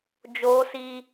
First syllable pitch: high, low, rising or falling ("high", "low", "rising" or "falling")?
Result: high